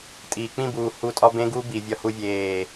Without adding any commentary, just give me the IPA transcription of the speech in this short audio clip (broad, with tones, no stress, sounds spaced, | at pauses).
tʼ iː˨ k͡p ĩ˦˨ b uː˨ h u˧ tʼ ɒ˦ b ẽ˦ ɡ u˦ b i˨ vʲ ɒ˧ h u˧ vʲ eː˦˨